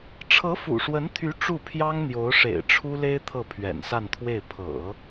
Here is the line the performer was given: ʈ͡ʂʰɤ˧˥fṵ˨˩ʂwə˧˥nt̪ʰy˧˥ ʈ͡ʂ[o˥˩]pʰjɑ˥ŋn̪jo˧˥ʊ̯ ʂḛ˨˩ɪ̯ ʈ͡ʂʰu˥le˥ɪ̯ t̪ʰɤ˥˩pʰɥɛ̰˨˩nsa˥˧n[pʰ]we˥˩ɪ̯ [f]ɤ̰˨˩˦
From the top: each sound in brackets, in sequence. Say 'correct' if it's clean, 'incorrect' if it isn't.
incorrect, incorrect, incorrect

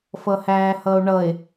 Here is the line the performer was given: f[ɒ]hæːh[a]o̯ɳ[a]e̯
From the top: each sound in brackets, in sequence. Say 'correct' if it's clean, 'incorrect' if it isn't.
incorrect, incorrect, incorrect

